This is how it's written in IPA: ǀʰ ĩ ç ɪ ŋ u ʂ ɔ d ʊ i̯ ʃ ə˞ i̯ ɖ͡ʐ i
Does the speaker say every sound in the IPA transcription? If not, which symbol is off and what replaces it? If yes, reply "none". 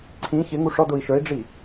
none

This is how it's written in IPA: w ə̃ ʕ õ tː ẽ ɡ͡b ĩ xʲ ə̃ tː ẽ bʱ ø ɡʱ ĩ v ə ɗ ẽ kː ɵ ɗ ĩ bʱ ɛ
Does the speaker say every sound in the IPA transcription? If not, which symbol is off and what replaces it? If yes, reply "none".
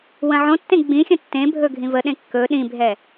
ø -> ɵ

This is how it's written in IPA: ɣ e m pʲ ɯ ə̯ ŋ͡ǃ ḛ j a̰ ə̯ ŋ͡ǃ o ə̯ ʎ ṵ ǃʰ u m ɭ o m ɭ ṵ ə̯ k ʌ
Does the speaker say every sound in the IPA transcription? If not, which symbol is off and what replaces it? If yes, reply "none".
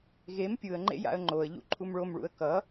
none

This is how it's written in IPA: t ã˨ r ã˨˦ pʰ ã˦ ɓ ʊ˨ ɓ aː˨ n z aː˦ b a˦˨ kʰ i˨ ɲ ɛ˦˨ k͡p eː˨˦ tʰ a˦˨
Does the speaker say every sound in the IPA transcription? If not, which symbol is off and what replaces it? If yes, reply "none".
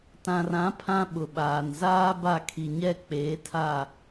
none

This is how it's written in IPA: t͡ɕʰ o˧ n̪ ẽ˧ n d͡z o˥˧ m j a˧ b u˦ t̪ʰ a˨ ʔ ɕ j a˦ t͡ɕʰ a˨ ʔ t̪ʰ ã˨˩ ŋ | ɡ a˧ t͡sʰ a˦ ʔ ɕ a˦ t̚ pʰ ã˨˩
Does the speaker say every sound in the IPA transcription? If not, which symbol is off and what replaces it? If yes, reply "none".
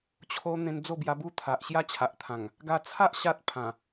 m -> b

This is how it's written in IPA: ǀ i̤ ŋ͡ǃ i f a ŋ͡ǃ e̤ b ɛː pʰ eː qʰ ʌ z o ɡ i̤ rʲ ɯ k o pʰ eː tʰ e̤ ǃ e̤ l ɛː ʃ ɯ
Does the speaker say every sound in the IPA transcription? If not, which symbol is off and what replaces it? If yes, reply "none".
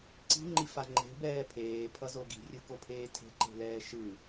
qʰ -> pʰ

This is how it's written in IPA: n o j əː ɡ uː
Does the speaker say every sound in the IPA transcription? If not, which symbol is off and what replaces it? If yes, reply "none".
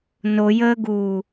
none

